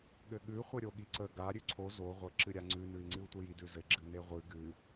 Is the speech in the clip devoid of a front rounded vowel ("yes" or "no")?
yes